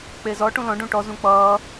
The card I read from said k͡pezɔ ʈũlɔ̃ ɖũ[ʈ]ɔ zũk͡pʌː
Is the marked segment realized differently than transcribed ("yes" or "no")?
no